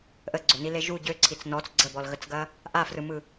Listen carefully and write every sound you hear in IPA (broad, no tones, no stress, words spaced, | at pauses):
ʔəɡ͡ǀønile ʒu ɟøǀʰit͡s nɔt͡s ɡ͡ǀəbɔlɣət͡sɡɐ | ʔafrɯmɯ